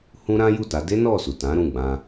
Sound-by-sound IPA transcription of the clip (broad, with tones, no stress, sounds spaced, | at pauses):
h ũ˦ ɾ ã˦ j u˦˨ t a˨˦ d e˦ n ɔ˦˨ s u˨ t ã˨˦ ɾ ũ˦˨ ɡ͡b ã˧